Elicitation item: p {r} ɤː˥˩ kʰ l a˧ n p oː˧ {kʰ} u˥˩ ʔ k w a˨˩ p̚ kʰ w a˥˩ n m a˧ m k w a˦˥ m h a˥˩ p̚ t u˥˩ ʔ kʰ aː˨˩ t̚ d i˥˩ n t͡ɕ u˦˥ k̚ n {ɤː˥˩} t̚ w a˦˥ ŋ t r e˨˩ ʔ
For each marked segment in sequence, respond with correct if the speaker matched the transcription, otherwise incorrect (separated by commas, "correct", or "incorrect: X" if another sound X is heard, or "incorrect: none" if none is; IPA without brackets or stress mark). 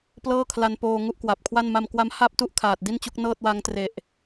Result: incorrect: l, incorrect: ŋ, correct